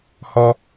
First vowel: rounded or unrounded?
rounded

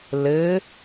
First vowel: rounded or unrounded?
unrounded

